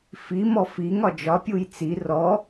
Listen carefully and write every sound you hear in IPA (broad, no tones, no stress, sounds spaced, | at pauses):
f i m ɔ f i ŋ ɒ d͡ʒ ɒ pʲ u j t͡s i r ɔ